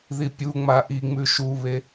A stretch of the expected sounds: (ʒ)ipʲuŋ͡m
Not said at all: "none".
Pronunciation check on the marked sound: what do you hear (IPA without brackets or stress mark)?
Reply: ð